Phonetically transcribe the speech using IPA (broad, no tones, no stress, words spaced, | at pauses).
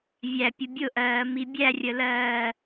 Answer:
vʲæpʲə bʲʊʔɜː mibʲærʲəlɜː